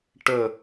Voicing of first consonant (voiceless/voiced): voiceless